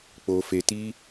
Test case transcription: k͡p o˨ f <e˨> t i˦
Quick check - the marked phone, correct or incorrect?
correct